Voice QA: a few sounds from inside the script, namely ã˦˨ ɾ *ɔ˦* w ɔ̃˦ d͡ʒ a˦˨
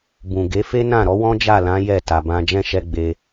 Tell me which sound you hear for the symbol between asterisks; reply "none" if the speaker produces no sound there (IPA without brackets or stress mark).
ɔ˨˦